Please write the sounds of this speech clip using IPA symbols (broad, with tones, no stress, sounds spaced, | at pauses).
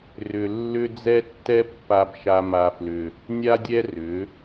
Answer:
r ʏ˧ lː ʏ˦ d͡z ɛ˦ tː ɛ˦ pː a˧ b ʃ a˧ m a˧ f l ʏ˧ | nʲ a˦ dʲ ɛ˦ r ʏ˨˦